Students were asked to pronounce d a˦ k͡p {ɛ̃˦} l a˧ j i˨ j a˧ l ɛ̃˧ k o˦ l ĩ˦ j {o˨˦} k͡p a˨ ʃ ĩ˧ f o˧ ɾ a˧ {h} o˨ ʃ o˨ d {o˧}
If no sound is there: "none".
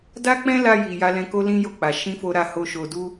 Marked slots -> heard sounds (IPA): ɛ̃˦, o˦˨, h, u˧

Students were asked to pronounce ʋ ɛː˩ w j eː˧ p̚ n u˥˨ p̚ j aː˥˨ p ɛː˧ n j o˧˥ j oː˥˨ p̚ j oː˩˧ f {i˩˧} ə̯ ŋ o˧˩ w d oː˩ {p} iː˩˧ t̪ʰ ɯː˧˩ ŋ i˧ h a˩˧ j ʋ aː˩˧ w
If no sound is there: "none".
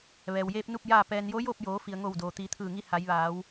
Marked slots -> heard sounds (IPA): i˩, t̪

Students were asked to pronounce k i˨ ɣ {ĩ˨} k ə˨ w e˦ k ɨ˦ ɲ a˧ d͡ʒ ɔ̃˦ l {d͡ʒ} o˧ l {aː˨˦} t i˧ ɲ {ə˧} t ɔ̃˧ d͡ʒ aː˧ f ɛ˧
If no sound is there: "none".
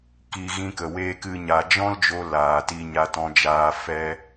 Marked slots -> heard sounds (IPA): ĩ˧, d͡ʒ, aː˨, a˧

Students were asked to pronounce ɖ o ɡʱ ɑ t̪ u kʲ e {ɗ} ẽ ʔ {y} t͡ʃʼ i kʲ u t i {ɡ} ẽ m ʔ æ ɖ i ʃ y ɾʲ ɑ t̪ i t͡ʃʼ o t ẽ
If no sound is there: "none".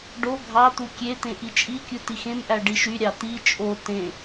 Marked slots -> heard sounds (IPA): t̪, i, x

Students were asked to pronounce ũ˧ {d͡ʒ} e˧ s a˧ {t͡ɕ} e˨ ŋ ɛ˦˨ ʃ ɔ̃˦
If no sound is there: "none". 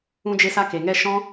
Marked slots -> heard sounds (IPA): d͡ʒ, k

